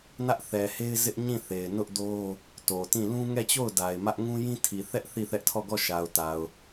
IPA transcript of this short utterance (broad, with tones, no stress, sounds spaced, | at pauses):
n ä˦ ʔ θ ɛ˨ h e˦ ɪ̯ z ɪ˦ ʔ ɲ ĩ˦˨ θ e˨ ɪ̯ n ʊ˦ ʔ d o˦ | t o˨ t ĩ˦˨ l ũ˦ ŋ ɛ˦˨ t͡ɕ o˦˨ ʊ̯ d a˨ ɪ̯ m ä˦ ʔ ŋ ũ˦ j ĩ˦ tʰ i˨ θ ɛ˦ ʔ θ i˦˨ θ ɛ˦ ʔ tʰ ɔ˦˨ ɡ ɔ˦˨ ʃ a˨ ʊ̯ t a˨ ʊ̯